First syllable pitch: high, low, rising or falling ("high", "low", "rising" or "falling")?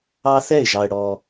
high